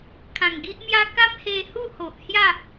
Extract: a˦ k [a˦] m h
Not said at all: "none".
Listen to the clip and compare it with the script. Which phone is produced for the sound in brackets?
a˦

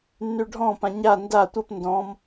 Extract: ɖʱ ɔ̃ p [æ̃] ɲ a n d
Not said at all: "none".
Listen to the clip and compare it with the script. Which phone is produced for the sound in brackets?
ã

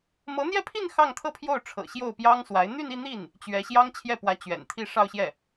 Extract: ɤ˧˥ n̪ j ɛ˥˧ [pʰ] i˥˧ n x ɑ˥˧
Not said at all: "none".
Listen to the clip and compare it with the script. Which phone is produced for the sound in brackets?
pʰ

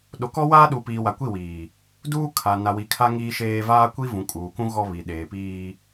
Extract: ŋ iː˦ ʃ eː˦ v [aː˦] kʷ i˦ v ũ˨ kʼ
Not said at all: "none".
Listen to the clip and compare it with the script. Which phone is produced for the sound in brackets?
aː˦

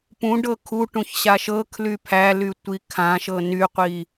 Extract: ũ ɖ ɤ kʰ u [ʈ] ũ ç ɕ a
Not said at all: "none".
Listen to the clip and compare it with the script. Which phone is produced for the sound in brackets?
ʈ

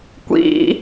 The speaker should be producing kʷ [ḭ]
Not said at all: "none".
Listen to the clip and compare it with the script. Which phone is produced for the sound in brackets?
ḭ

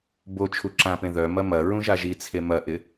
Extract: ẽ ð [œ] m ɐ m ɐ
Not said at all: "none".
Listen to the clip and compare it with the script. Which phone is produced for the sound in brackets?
œ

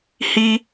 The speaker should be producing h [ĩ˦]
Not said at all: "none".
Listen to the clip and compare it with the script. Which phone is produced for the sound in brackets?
i˦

